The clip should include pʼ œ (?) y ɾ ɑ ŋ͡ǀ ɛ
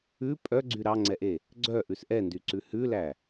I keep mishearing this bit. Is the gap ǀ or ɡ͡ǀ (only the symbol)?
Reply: ɡ͡ǀ